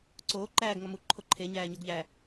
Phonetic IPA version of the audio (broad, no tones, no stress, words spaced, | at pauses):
ǀoː ǃæːɡ ŋɒmu ǃʰoǃʰe ɲæːɲoɡʎæ